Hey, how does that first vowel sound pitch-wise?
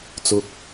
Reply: low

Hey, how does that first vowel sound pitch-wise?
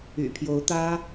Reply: low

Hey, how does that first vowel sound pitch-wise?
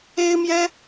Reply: high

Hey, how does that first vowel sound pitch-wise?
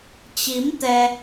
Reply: rising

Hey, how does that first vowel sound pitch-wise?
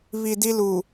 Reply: low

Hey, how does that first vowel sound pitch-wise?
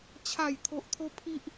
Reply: falling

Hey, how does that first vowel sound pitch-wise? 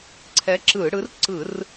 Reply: rising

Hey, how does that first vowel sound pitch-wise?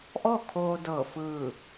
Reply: falling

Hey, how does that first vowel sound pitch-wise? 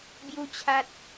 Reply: high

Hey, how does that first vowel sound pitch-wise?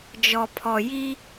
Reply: low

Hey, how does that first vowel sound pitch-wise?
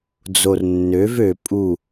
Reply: low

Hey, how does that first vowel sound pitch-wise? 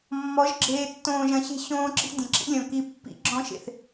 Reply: rising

